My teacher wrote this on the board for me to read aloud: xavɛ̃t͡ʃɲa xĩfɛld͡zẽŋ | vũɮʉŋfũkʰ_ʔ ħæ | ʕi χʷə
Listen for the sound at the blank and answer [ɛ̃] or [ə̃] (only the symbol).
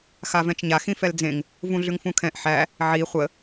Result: ɛ̃